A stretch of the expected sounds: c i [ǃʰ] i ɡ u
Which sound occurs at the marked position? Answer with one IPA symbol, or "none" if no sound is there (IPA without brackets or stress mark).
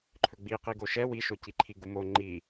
ǃʰ